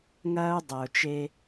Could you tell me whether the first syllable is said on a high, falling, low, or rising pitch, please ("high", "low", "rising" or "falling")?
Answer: high